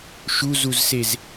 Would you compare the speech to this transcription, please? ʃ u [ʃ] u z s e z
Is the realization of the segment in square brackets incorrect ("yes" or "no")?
yes